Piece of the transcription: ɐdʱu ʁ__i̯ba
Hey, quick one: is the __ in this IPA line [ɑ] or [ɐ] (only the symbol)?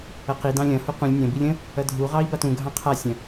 ɑ